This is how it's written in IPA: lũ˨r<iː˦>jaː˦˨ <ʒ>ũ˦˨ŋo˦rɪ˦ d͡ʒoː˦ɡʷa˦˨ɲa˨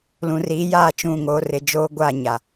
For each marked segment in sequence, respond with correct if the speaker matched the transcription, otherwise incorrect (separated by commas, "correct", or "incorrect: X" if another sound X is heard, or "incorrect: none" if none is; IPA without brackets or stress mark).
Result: incorrect: iː˨˦, incorrect: t͡ʃ